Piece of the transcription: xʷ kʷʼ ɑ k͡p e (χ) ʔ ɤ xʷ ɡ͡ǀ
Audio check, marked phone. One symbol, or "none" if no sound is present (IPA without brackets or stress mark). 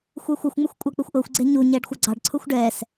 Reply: xʷ